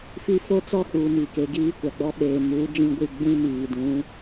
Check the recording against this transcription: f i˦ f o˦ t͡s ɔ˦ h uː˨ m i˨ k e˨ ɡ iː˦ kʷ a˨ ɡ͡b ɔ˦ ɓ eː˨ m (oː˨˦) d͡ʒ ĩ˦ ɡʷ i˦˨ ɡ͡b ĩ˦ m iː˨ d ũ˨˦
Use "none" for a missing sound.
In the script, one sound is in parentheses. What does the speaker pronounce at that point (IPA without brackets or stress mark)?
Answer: uː˨˦